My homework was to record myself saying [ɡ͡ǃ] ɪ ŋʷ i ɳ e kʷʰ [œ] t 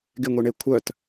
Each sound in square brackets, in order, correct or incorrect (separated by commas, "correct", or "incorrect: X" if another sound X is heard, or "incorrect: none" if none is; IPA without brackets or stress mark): incorrect: ɡ, correct